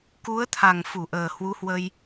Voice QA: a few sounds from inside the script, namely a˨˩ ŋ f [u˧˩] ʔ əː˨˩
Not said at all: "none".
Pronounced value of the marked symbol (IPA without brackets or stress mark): u˧˩